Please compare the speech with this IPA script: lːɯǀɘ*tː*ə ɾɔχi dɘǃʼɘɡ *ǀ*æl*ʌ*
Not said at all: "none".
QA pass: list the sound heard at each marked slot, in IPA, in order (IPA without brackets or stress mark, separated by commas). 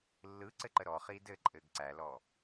ǃ, ǀ, ɔ